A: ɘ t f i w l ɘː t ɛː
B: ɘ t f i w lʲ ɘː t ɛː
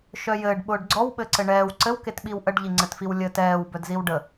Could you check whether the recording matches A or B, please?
B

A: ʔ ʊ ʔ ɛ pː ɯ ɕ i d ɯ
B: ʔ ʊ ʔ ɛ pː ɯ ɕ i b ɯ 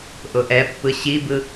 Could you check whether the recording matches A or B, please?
B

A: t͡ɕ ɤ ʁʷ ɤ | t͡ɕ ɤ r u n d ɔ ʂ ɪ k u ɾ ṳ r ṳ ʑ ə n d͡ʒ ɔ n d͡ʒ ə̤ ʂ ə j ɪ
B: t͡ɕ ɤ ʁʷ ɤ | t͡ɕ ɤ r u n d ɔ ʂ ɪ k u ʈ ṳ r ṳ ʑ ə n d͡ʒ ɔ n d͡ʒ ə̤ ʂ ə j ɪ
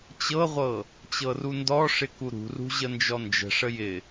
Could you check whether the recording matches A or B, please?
A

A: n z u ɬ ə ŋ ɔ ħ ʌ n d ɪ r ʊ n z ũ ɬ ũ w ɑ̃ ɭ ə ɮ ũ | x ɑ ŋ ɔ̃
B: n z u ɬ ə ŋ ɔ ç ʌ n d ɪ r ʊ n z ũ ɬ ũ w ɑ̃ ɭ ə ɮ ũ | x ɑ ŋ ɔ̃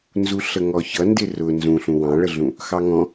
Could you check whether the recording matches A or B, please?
B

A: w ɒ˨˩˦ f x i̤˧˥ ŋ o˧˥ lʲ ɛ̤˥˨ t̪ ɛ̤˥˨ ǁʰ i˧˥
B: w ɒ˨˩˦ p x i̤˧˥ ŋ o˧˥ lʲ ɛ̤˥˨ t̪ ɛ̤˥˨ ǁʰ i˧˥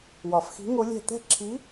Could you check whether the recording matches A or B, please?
A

